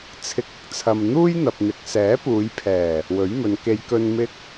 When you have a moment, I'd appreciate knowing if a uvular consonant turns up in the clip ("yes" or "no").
no